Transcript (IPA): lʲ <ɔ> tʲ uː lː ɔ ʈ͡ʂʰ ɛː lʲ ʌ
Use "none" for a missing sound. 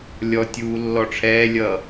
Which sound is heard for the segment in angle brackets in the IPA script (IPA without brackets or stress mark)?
ɔ